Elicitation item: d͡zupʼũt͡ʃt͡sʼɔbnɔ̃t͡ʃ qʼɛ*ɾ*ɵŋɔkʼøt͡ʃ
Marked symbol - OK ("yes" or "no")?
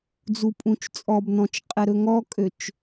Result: yes